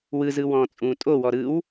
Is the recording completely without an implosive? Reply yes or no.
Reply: yes